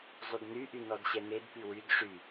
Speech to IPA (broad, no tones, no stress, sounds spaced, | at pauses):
zˤ y d n y ʔ y n ɔ d ɕ ɛ n e d p y w y d ʂ y